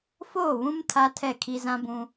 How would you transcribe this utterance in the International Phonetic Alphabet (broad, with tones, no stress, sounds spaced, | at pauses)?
f oː˦˨ β ũ˦ m tʰ a˦ tʰ ɛ˦˨ kʰ i˦ z ã˦ b ũ˦